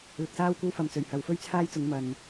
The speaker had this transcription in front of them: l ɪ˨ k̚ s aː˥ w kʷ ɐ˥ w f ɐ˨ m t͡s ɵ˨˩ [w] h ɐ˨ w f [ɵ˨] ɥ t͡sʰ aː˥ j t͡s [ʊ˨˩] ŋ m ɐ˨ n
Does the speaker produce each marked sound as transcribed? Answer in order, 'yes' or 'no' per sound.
no, no, no

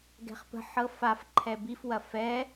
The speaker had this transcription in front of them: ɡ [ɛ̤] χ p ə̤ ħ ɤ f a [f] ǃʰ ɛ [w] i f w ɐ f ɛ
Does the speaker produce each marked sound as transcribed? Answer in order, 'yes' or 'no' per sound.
yes, yes, no

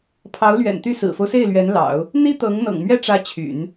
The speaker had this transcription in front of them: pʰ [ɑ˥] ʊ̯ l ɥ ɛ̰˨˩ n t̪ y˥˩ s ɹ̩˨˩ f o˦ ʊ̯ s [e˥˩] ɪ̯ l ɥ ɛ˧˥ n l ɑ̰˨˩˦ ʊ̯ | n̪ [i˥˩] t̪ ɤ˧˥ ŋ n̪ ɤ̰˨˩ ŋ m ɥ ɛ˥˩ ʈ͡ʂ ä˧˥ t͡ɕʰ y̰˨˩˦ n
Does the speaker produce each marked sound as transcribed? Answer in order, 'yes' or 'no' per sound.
no, yes, no

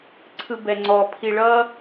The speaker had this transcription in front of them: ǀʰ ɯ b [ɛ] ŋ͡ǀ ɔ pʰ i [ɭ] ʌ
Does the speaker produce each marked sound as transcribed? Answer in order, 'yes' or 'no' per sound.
yes, yes

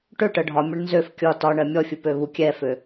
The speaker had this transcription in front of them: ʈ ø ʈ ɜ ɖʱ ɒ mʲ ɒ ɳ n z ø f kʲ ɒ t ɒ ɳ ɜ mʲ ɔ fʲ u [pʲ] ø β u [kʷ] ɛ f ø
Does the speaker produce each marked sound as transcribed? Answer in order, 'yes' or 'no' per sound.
no, no

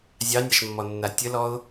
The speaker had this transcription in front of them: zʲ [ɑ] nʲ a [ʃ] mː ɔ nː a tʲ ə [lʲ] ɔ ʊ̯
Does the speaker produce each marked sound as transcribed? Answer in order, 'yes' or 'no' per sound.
yes, yes, no

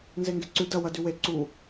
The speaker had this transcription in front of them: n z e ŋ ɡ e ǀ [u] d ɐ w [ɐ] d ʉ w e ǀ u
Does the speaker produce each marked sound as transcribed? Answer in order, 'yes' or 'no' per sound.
no, yes

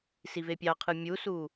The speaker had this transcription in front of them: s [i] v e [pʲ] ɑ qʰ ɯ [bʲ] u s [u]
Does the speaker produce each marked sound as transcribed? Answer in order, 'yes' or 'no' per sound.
yes, yes, no, yes

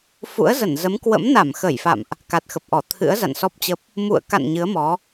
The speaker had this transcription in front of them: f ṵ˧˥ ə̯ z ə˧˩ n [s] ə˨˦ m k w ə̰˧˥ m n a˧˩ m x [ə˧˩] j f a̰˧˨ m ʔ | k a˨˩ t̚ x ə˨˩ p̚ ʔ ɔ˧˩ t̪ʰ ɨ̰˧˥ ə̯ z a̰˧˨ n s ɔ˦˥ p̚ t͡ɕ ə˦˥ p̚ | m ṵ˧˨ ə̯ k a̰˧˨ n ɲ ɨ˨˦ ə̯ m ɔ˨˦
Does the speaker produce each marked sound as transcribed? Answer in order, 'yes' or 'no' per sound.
no, yes

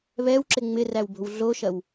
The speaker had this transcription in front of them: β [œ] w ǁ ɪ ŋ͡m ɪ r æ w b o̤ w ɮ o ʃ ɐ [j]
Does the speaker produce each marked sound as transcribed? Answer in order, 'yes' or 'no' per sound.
no, no

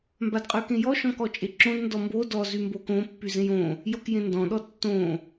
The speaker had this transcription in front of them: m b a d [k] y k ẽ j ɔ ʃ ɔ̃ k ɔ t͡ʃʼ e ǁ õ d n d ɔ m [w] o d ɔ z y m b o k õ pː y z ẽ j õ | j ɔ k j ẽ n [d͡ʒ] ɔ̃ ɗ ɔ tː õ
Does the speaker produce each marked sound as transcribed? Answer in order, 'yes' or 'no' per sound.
no, no, no

